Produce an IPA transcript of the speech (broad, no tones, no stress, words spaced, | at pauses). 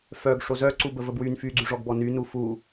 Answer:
fœɡ ʂozœǀu bəvəbwyn fyɡ͡ǀyʐɔɡbɔ ny nufu